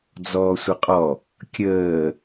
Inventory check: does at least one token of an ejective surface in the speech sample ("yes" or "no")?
yes